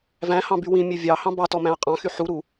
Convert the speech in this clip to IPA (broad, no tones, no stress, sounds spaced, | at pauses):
v æ̃ h ɑ̃ b y w ĩ mʲ e vʲ ɑ h ɑ̃ b ɑ t ɔ m æ̃ ɐ̯ qʼ ɑ̃ x y ħ u ɾ u